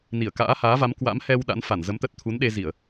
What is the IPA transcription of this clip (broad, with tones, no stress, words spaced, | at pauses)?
ni˧˩ə̯ka̰ː˧˥haː˨˦va˨˦m kwa̰˧˥mhɛ˧w ɗa̰˧˥nfa˧˩nzə˨˦m t̪ə˦˥t̚ t̪ʰu˨˦nɗe˧ zi˧˩˨ə̯